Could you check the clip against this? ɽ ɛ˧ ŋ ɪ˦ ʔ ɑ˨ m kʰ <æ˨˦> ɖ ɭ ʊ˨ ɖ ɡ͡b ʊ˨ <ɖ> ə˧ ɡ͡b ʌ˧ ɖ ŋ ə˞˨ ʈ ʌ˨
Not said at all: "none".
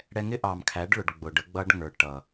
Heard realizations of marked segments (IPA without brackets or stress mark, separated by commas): æ˨˦, ɖ